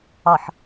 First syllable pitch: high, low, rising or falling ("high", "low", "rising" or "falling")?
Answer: low